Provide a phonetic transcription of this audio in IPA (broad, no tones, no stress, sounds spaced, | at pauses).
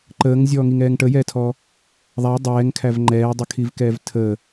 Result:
ǃ əː ŋ zʲ ɔː ŋ i ŋ ɛː ŋ ʈ ə j ɛː tʰ ɔː | ðˤ æ dˤ ɛː ŋ kʰ æ v ŋ͡ǃ ɛː dˤ ə kʰ i v k ɛː v tʰ əː